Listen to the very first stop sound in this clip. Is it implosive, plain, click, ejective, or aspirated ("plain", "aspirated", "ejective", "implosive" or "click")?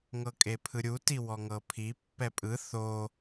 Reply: ejective